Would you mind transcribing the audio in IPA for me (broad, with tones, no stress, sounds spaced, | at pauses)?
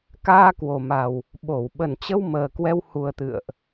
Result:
k aː˧ k w o˨˩ m a˨˩ w | ɓ o˧˩ w ɓ ə˨˩ n t͡ɕ ə˧ w m əː˨˩ k w ɛ˧ w h u˨˩ ə̯ t̪ ɨ̰˧˨ ə̯ ʔ